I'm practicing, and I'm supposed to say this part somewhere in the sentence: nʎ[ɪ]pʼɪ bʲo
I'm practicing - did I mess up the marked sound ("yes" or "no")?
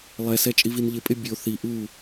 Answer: no